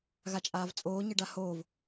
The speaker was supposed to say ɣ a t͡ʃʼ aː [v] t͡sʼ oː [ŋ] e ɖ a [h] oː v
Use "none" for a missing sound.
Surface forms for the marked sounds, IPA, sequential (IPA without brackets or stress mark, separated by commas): v, ɲ, h